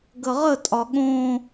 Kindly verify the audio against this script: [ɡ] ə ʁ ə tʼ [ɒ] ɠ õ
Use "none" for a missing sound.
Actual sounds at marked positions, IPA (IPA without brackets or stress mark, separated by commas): ɡ, ɒ